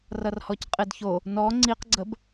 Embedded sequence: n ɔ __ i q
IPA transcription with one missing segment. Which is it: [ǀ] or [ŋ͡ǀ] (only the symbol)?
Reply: ŋ͡ǀ